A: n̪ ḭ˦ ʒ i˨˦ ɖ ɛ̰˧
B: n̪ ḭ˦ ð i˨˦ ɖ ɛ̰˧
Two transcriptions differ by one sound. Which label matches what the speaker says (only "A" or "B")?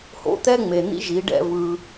A